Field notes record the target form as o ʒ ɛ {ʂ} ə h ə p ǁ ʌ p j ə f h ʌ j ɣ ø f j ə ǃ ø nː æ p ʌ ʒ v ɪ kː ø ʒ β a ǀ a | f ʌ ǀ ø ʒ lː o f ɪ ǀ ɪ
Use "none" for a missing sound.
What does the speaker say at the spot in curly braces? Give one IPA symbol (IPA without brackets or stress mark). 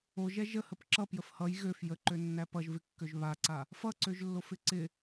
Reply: ʒ